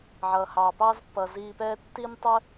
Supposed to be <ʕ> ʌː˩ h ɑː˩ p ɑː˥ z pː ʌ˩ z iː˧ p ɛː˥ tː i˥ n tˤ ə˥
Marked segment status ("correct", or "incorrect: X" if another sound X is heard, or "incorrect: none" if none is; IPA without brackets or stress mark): correct